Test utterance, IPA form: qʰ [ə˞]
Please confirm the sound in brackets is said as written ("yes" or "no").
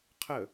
no